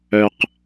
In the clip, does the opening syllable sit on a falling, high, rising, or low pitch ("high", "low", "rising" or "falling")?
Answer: low